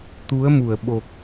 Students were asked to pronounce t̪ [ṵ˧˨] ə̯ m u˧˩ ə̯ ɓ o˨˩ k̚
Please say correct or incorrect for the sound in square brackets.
incorrect